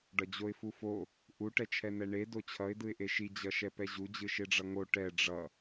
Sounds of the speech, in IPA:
ɖ ʌ d͡ʑ o ɪ̯ f u f o | ʔ u ʈ ɛ t͡ʃʰ ɛ n ɛ ɳ e d o t͡ɕʰ ʌ ɪ̯ d ɯ ɪ̯ ʔ e ʃ i d͡ʑ ʌ ʃ ɛ p ɛ ʑ u d͡ʑ ɯ ʃ e ɖ͡ʐ ʌ ŋ o ʈ ɛ ɖ͡ʐ ʌ

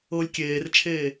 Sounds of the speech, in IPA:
ɤ lʲ kʲ eː r t͡ʃʰ eː

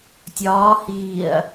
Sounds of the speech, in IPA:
tʲ ɒː h iː ɐ̯

